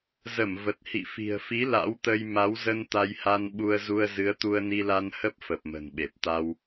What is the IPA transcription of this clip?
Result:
z ə˧˩ m v ə˨˩ t̚ h ḭ˧˨ f i̤˨˩ ə̯ f i˨˦ l a̰˧˥ w t̪ ə˧ j m a˨˦ w z ə˧ n t̪ a˧ j h a˧ n ɓ u˧ ə̯ z u˧ ə̯ z ɨ˨˦ ə̯ t̪ u˧ ə̯ n i˧ l a˧ n h ə˦˥ p̚ f ə˨˩ p̚ m ə̤˨˩ n ɓ e˨˩ p̚ t̪ a˧ w

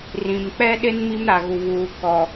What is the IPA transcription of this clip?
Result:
r ĩ˨ m k͡p ɛ˦ ɗ ɪ˦ n m i˦ m ɾ a˨ ɣ u˨ β uː˨ k ɔ˨

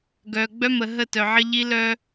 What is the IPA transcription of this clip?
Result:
ɡ œ˨ ɡ͡b œ˦ m ə˨ ɦ ə˦˨ t œ˨ ʕ ə˦ ʎ i˦ l œ˦

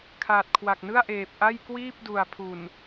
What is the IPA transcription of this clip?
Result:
kʰ aː˨˩ t̚ kʰ w a˨˩ k̚ n ɯ˥˩ a̯ ʔ eː˨˩ p̚ ʔ a˥˩ j k w iː˥˩ p̚ d u˨˩ a̯ pʰ u˨˩ n

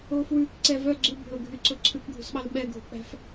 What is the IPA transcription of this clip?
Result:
oː f w ʉː k ǀ ɛ v œ ɡ͡ǀ ʉ bʱ ɵ ɡʱ y ǀ ɵ ǀʰ ʉ kʷ ɡʱ ṳ s ɓ ɑ l ɓ ɛ ɡʱ ṳ k͡p æ̤ f

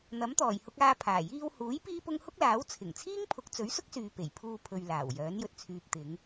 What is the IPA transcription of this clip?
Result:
n̪ ɐ˨˥ m t̪ ɔː˨˩ j h ʊ˧ k̚ aː˧ pʰ aː˨˩ j iː˧ w h uː˨˥ j p iː˥ p ʊ˥ ŋ h ʊ˥ k̚ l aː˨˥ w t͡sʰ ɪ˨˩ ŋ t͡sʰ iː˥ ŋ pʰ ʊ˨˥ k̚ t͡s ɵ˨˥ ɥ s ʊ˥ k̚ s yː˨ p e˨˩ j pʰ uː˧ pʰ ɵ˨ ɥ l aː˨˩ w j œː˨˥ n j ɵ˨ t̚ t͡sʰ yː˨ p̚ t̪ ɪ˨˧ ŋ

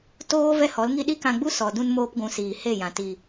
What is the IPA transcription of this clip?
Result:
t oː˦ v ɛ˦ h ɔ˨˦ l ŋ i˦ ɗ i˦ k ã˧ ɡ͡b u˦ s ɔ˨ d ũ˧ n m oː˧ p ɡʷ ũ˨ s iː˨ h e˦˨ j ã˨ t i˨

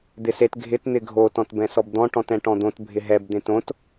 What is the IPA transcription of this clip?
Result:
d̪ ɪ s e t ɡʱ ɪ t n̪ ɪ ɡʱ o t ɔ̃ t b ɛ̃ s ɔ b d̪ ɔ̃ ʈ ɔ̃ t ɛ̃ ʈ ɔ̃ d̪ õ t bʱ ɪ ɦ ɛ b d̪ ẽ t õ t

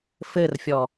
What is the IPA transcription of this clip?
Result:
f ɘ r fʲ ɔ

